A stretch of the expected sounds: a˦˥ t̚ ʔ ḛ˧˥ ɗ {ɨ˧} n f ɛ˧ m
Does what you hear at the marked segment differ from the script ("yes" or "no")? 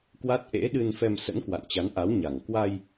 no